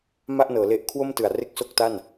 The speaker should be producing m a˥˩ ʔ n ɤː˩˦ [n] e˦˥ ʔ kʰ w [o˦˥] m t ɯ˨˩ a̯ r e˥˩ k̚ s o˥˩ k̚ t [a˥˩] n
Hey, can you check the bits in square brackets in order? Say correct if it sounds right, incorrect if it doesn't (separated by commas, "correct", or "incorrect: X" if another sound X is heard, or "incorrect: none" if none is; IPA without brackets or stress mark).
incorrect: l, incorrect: o˥˩, correct